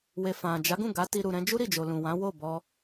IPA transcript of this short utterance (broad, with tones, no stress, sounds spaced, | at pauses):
w e˨ f ã˨ d͡ʒ a˨˦ ɡ ũ˦˨ ɡ a˨˦ t i˧ ɾ u˨ ɾ ɛ̃˧ d͡ʒ u˦ ɾ i˦˨ d͡ʒ o˨ l ũ˨ w ã˨˦ w o˦˨ b ɔ˧